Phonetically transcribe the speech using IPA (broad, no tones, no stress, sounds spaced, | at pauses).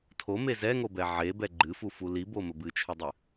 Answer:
tʰ o m e z ɛ ŋ o b ɛ ʕ e b ɛ ɡ͡ǃ ɨ f u f u l i b o m ə b ɨ t͡ʃʰ ɨ dˤ ɨ